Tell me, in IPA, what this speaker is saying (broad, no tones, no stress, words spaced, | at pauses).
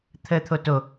t̪ʰəːt̪ʰoto